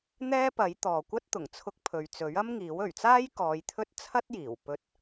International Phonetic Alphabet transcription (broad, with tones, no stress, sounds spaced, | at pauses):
n̪ ɛː˥ p ɐ˨˥ j t̪ ɔː˨ kʷ ɐ˥ t̚ t̪ ʊ˨˩ ŋ t͡sʰ ʊ˧ k̚ pʰ ɵ˨ ɥ t͡s ɵ˨˥ ɥ ɐ˥ m ŋ iː˨˥ w ɵ˨˩ ɥ t͡s aː˥ j k ɔː˨˧ j t̪ʰ ɵ˥ t̚ t͡sʰ ɐ˥ t̚ j iː˨˩ w p ɵ˧ t̚